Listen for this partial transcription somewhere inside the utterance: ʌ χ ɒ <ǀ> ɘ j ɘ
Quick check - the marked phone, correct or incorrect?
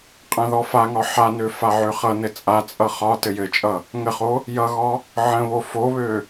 incorrect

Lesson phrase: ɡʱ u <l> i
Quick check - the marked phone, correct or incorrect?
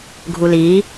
correct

